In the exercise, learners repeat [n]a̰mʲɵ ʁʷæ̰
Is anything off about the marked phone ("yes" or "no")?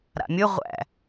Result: yes